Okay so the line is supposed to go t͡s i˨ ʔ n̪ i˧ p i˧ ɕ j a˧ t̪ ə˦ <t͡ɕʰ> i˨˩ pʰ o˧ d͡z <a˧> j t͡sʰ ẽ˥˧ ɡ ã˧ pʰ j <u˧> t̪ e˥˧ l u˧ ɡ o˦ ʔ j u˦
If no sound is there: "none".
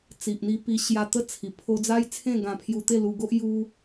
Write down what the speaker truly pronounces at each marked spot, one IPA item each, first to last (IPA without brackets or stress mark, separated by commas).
t͡sʰ, a˦, u˧